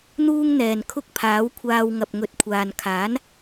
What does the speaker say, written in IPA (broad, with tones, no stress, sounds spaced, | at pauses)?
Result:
n̪ uː˥ ŋ n̪ ɛː˨˩ n kʰ ʊ˥ k̚ pʰ aː˨˥ w kʷʰ aː˧ w ŋ ɐ˨ p̚ ŋ ɵ˧ t̚ kʷʰ aː˨ n kʰ aː˨˥ n